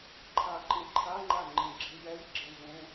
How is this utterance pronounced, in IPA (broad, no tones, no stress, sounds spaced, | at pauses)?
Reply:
ǃʰ a ǃ ĩ ǃʰ a ŋ͡ǃ a ŋ͡ǃ ĩ ɡ͡ǁ i j ɛ j ɡ͡ǁ ẽ v ẽ